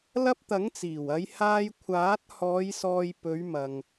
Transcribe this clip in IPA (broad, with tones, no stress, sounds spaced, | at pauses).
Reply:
l ɐ˧ p̚ t̪ ɐ˨˥ ŋ t͡s iː˨˩ w ɐ˨˧ j h aː˧ j kʷʰ aː˨˥ t̚ h ɔː˨˧ j s ɔː˨ j p ɵ˨˧ ɥ m ɐ˨ ŋ